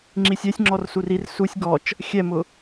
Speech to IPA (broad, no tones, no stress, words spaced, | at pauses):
ŋ͡ǁisʲɛsʲŋ͡ǁɔr surir susʲ ɡɔt͡ʃ | xʲɛmʊ